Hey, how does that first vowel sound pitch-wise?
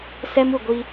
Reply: high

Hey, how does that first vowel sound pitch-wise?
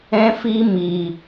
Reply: high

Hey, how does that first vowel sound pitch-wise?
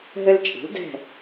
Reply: high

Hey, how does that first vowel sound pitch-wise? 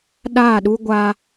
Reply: falling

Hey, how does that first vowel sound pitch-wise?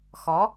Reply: rising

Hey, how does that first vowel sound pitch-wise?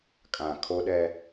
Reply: low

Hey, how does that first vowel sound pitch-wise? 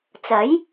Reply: rising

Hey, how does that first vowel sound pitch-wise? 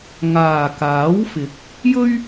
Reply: low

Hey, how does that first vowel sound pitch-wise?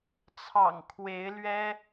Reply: low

